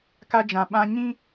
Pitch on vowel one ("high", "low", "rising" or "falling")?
high